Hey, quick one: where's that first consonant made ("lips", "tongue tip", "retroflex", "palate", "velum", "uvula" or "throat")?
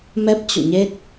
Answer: lips